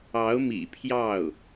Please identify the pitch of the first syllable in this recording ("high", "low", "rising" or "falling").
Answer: rising